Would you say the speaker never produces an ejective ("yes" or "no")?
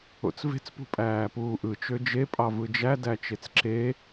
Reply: no